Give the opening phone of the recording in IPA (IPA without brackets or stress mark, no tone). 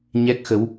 ɲ